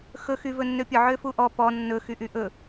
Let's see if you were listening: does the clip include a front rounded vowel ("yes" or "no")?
yes